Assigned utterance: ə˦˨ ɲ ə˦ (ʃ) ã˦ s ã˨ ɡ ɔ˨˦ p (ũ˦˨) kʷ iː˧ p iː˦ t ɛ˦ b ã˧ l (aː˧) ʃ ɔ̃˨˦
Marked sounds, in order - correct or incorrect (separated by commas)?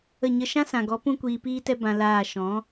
correct, incorrect, incorrect